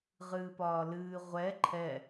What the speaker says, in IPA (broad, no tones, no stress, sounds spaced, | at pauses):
ʁ ɨː p ɒː l ɨː ʁʷ ɛ ǃʰ ɛ